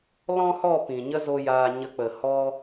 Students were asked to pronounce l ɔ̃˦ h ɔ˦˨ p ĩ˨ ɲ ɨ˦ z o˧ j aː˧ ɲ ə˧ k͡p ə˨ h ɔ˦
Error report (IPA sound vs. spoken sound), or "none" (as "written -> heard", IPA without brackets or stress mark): ɨ˦ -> ə˦